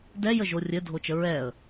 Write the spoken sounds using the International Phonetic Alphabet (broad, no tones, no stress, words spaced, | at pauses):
dɛ jəʒorʲɘ dʱot͡ʃəɹɛə̯